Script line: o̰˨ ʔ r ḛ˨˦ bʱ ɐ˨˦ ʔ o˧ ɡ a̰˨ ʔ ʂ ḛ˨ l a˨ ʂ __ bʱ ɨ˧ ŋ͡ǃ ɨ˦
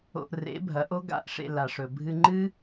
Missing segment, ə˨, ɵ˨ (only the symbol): ɵ˨